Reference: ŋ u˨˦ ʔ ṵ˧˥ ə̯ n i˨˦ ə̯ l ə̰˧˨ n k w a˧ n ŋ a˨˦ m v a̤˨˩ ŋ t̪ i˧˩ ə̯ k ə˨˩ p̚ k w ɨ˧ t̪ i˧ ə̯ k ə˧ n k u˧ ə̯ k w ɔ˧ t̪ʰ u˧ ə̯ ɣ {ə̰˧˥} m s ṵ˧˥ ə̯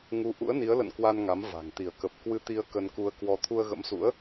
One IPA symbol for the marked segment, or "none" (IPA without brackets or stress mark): ə̰˧˥